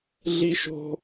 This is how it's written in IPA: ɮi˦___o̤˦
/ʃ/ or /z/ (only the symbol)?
ʃ